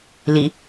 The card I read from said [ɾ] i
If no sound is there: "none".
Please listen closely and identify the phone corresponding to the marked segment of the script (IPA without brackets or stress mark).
l